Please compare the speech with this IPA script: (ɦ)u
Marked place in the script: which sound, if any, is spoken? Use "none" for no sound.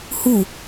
h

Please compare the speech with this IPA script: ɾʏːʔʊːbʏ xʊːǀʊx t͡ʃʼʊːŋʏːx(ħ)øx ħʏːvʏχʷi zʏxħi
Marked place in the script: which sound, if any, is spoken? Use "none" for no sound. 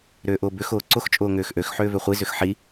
ʔ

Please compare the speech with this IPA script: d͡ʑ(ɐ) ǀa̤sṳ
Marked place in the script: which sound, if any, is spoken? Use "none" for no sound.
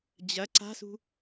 ɐ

